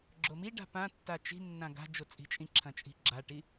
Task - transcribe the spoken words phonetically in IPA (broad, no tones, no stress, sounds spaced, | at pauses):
ɡ͡ǁ o m i ɖ a̤ p ã tː a t͡ʃ i̤ nː ã ɡ a̤ d͡ʒ o t͡sʼ i̤ t͡ʃʼ ĩ ǁʰ ɐ̃ t͡ʃʼ i̤ ɡ͡ǁ a ʈ i